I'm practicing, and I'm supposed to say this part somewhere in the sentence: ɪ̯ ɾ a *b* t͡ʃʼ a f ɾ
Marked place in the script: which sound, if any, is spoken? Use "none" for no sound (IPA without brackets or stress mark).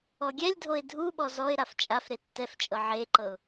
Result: f